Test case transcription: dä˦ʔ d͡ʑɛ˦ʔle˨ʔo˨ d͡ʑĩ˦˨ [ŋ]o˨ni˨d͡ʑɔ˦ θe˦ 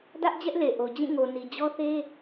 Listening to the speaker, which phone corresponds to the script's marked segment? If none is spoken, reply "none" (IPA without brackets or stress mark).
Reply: ŋ